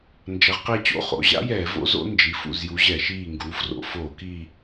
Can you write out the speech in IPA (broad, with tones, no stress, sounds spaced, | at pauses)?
n d͡ʒ ɐ˨˦ ʁ q e˦˨ t͡ɕ o̰˦˨ χ o̰˩˧˩ ʑ a̰˦˥ j ɛː˧˩˧ v o̰˦˥ z o̰˦˥ n d͡ʒ i˩˧˩ f ṵ˦˨ z j u˨˦ ʑ ɛ˧˩˧ ʃ iː˦˨ ŋ ɡ u˩˧˩ f r o̰˦˨ f oː˧˩˧ k i˦˨